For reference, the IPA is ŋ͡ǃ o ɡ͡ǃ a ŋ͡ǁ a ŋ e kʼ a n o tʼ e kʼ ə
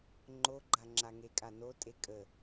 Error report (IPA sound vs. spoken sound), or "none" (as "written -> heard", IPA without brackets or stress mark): none